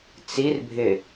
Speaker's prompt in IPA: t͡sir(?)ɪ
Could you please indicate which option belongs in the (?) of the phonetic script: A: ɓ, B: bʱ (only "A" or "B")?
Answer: B